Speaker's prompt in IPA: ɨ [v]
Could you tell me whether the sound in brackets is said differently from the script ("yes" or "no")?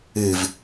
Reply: no